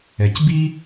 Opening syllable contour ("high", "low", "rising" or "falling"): low